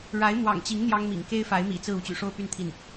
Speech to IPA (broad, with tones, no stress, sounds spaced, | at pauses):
ɻ a˧˥ ɪ̯ m w ɑ̰˨˩ ŋ t͡ɕ i˧˥ ŋ n̪ j ɑ˥ ŋ m ḭ˨˩ ŋ k e˥ ɪ̯ f a˧˥ ɪ̯ m ḭ˨˩ t͡s ɹ̩˥˧ u˥˩ t͡ɕ y̰˨˩ ʂ o˥˧ ʊ̯ p y˥˧ n t̪ʰ i˥˩ n